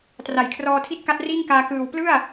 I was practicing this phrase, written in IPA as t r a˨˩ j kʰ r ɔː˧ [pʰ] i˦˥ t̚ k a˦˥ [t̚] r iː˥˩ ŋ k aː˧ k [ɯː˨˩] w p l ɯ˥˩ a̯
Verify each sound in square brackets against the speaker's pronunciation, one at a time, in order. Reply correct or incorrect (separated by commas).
incorrect, correct, correct